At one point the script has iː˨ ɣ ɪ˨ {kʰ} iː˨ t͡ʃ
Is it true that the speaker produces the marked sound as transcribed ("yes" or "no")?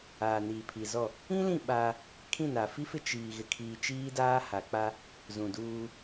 yes